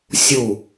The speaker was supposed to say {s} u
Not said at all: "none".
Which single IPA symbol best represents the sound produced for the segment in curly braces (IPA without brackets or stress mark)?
sʲ